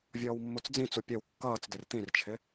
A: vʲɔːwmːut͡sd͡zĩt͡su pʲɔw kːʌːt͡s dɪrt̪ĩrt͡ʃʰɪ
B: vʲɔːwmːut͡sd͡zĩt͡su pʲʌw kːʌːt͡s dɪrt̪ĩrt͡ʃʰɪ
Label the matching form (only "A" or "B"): B